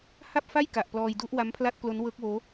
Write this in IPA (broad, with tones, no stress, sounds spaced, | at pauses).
h a˥˩ p̚ f a˥˩ j k a˨˩ ʔ p l ɔː˧ j d u˦˥ ʔ w a˦˥ m pʰ l a˥˩ t̚ k l o˦˥ n w ɤː˦˥ k̚ w oː˦˥